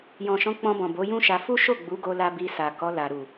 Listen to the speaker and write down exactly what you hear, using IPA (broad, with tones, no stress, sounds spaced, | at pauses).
j ɔ̃˨ ʃ ɔ̃˨˦ k͡p ɔ̃˧ b ɔ̃˨ b o˨˦ j ũ˦ ʃ a˧ f u˦ ʃ o˦˨ ɡ͡b u˨˦ ɡ o˧ l a˧ b i˧ s a˨ k ɔ˨˦ l a˧ ɾ u˨